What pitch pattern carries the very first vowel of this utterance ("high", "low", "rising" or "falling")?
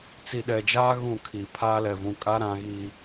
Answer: low